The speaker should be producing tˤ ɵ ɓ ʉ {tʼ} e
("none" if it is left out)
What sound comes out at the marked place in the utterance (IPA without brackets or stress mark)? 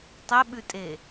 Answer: tʼ